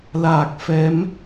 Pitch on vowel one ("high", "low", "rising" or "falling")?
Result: low